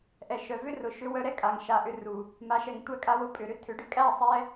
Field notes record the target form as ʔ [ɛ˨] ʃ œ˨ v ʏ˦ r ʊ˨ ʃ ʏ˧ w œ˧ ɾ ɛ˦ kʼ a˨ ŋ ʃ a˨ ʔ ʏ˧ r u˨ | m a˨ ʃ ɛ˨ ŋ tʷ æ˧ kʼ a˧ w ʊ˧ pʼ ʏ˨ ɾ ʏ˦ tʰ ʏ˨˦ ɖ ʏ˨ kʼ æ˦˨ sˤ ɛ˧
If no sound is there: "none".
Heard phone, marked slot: ɛ˨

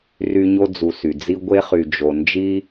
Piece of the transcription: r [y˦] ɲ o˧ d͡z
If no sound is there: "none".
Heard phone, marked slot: y˧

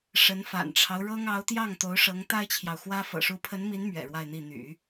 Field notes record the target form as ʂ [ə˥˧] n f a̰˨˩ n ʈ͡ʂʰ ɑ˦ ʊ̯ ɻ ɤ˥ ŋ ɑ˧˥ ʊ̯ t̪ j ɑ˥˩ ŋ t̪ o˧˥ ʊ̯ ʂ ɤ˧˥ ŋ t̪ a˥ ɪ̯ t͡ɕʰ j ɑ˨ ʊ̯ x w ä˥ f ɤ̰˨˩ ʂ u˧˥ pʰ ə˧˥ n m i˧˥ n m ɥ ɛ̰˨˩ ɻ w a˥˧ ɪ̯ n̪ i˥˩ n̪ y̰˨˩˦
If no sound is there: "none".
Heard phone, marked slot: ə˧˥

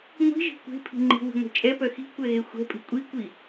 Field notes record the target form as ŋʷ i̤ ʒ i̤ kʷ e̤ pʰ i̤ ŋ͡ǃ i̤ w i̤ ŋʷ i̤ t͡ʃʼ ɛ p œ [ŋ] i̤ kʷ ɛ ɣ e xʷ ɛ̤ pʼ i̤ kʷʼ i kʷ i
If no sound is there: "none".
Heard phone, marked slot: x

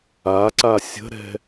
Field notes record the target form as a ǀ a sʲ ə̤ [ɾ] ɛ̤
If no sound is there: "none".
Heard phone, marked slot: ɾ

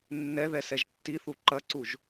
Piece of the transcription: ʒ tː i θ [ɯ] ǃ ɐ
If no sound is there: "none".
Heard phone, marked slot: u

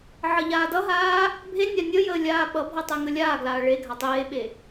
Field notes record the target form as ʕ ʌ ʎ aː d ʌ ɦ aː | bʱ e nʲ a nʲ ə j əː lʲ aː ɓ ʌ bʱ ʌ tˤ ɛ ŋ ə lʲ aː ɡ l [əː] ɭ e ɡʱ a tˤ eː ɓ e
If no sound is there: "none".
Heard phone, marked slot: aː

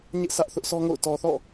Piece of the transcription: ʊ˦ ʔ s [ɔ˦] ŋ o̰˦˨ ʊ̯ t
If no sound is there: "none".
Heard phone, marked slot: ɔ˦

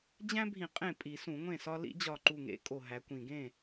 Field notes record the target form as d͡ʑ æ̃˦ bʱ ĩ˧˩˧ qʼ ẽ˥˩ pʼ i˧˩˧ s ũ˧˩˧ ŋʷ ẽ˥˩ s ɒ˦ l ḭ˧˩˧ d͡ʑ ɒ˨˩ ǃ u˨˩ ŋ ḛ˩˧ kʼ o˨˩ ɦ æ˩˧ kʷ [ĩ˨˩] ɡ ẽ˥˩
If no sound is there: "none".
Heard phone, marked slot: ĩ˨˩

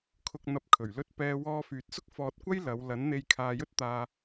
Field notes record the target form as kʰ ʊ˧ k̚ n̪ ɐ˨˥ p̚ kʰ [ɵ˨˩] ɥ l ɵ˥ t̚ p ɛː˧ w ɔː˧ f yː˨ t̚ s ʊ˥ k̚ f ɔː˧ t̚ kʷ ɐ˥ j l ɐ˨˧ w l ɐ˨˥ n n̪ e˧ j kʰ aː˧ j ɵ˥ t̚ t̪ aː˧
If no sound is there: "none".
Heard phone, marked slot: ɵ˨˩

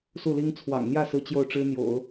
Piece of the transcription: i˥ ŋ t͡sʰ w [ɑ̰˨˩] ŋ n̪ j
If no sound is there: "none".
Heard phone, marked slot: ɑ̰˨˩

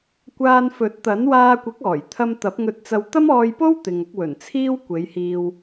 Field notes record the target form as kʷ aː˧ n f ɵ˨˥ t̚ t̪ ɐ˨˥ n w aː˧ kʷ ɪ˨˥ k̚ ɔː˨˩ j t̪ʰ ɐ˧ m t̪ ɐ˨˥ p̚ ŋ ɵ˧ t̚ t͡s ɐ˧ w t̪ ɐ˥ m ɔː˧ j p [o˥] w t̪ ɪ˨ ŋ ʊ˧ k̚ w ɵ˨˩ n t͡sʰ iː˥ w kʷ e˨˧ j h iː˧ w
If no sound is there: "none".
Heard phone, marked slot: o˥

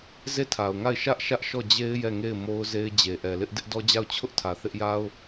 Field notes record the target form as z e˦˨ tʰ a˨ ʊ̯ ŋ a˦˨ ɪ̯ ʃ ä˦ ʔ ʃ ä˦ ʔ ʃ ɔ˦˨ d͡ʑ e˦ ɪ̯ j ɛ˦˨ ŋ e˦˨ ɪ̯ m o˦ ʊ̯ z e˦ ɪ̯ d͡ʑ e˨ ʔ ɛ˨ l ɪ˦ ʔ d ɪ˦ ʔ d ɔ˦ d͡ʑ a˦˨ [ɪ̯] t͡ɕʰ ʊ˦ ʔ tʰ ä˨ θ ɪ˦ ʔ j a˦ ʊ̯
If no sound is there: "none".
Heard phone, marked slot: ʊ̯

